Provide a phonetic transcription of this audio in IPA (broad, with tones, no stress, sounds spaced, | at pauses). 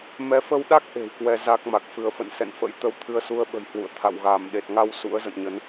m ɛ˨˦ f ə˧ w ɗ a˦˥ k̚ ʔ e̤˨˩ w k w ɛ˧ z a˦˥ k̚ m a˨˩ k̚ f ɨ˧ ə̯ f ə̰˧˨ n s ɛ̰˧˨ n f ə̰˧˥ j t̪ ə˧ w t̪ʰ ɨ˧ ə̯ s u˧ ə̯ ɓ ə̤˨˩ j h w ṵ˧˨ ə̯ t̪ʰ a̰˧˨ w ɣ aː˧˩ m ɗ e˨˩ t̚ ŋ a˧ w s ṵ˧˥ ə̯ z ə̰˧˨ n ɲ ə˨˦ n